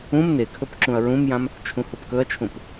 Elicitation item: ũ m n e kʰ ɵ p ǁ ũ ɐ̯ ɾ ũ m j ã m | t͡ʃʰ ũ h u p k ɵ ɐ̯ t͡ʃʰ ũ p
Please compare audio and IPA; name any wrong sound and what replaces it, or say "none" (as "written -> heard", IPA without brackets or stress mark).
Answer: ɾ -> ɹ